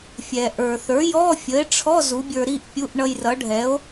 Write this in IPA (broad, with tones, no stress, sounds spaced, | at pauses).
fʲ ɛ˩ ʔ ə˞˩ θ ə˞˩˥ j ɔ˧˥˧ fʲ ə˩˥ e̯ ʈ͡ʂʰ ɔ˧˥˧ z u˩˥ bʲ ə˞˧ ɾ i˧˥˧ ʔ pʲ u˧˥˧ ʔ ɳ ʌ˧ j r ʌ˩˥ ɖʱ ɛ˩˥ o̯